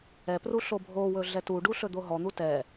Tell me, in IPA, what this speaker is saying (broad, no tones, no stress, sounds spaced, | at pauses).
ɛ p r u ɬ o bʱ o w ɵ ɮ ɛ t u ɖ u ɬ ɵ d̪ o ɦ ɔ n̪ u t ɛ